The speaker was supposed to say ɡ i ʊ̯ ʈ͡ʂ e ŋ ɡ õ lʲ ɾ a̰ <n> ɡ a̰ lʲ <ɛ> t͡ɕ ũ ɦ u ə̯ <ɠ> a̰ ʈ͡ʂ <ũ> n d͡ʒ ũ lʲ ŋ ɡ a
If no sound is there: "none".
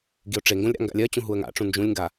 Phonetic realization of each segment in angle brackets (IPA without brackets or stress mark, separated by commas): ŋ, ɜ, ŋ, ũ